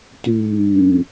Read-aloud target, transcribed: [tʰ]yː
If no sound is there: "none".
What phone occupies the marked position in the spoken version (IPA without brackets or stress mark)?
t